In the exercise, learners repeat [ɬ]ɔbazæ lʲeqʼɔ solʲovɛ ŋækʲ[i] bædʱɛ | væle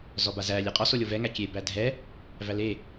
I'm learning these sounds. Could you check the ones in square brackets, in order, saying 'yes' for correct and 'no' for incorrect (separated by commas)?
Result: no, no